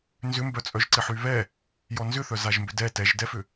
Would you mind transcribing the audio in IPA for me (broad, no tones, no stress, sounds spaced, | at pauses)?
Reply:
n z ʏ m b œ t͡sʼ œ ʒ ǀ ɪ ħ y β ɛ | j ɔ n z ʏ θ œ z a ʒ m b ʏ d ɛ t ɛ ʒ d ɛ f ʏ